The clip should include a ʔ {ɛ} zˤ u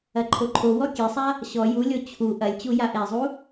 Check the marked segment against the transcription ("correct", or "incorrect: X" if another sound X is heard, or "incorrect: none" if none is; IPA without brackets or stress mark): correct